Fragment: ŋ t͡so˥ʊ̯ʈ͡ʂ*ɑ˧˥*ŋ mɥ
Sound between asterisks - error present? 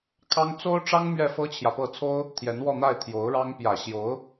yes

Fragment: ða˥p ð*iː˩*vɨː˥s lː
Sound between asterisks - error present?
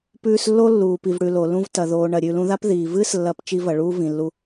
no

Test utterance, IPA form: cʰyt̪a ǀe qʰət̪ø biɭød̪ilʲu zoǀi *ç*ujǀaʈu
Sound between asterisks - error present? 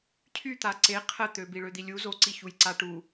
no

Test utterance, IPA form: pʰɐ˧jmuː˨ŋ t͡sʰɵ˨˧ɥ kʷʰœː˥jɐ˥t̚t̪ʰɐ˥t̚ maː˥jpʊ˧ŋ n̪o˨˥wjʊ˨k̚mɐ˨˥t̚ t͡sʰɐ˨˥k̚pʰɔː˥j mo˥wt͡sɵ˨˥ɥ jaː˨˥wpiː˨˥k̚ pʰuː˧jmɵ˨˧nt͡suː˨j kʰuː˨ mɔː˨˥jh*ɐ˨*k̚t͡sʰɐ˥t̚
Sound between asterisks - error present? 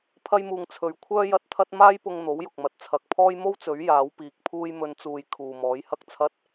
yes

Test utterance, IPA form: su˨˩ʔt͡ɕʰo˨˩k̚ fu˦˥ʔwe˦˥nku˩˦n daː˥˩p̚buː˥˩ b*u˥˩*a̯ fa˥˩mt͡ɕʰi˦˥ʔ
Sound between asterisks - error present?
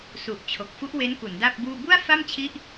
no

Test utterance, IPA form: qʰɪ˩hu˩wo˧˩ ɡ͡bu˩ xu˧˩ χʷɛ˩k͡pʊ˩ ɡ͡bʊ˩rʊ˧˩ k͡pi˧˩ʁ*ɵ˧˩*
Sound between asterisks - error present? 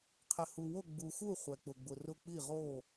yes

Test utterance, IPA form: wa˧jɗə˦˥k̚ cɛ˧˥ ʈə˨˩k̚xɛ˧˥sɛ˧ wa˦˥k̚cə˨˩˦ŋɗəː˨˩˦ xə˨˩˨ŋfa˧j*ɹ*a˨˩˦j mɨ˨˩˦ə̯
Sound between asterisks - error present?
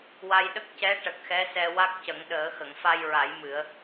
no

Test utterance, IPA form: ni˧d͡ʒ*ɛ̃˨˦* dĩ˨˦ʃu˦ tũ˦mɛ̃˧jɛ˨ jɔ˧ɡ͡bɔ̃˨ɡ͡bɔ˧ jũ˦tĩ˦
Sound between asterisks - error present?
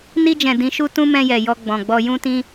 yes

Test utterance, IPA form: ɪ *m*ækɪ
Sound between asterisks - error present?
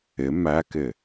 no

